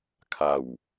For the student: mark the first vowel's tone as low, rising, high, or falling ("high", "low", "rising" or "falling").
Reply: low